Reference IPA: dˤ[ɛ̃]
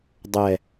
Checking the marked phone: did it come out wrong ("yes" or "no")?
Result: yes